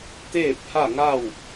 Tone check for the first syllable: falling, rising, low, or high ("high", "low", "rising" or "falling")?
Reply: falling